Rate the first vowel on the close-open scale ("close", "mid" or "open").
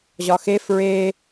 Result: open